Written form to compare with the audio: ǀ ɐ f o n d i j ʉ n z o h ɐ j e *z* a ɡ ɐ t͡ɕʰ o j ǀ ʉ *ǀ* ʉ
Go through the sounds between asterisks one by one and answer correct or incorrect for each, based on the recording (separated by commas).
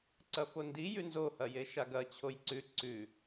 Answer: incorrect, correct